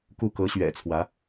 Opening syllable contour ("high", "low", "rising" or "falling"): falling